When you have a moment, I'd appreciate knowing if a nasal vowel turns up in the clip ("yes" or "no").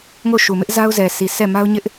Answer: no